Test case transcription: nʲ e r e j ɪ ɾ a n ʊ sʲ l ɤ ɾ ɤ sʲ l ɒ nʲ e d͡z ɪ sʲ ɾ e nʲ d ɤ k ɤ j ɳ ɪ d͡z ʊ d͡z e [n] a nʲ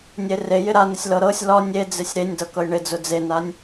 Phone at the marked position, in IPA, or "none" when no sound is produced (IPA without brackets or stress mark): n